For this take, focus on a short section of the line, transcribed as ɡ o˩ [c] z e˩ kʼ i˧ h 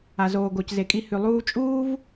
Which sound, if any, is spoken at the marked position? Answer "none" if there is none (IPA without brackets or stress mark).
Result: c